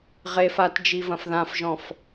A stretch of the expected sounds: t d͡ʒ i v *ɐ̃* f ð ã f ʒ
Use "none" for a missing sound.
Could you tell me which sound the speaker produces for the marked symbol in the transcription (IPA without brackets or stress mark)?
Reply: ɐ̃